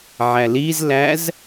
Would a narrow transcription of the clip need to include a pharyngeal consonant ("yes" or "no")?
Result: yes